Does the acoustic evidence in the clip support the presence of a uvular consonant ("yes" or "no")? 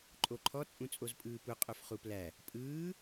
yes